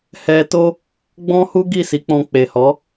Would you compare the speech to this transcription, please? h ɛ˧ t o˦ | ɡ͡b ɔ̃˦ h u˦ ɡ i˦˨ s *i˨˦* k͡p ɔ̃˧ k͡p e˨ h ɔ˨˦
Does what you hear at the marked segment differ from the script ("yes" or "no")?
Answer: no